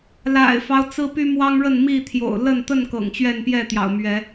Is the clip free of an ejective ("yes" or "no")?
yes